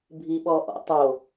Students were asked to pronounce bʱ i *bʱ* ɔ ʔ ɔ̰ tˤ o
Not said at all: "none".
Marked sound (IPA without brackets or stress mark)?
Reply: ɓ